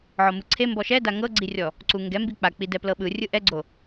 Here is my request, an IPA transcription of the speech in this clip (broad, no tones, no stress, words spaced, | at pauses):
ʕɔmɯǀʰe mbɔʃɛda ŋɤɡ͡ǀirʲɔ | ǀuŋɡɛ mbik͡pa k͡pidɛplɤɓɯ rʲɯʔɛɡ͡ǀo